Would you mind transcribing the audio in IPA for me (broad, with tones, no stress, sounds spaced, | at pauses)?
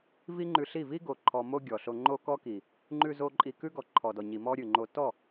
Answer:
v i˦ ŋ͡ǃ ʉ˧ ɬ i˦˨ v i˦ ɡ o˨ ǃʰ ɔ˧ m o˦ ɡʲ ɔ˨ ɬ o˧ ŋ͡ǃ o˧ k ɔ˧ k i˨ | ŋ͡ǃ ʉ˧ z o˧ ǃʼ i˧ k ʉ˦ ɡ ɔ˨ ǃʰ ɔ˨ d ɔ˨ ɲ i˨ m ɔ˦ ɾʲ ʉ˨ ŋ͡ǃ o˧ t ɔ˦˨